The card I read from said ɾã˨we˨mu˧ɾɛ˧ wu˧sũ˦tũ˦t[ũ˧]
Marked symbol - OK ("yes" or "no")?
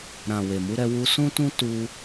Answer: no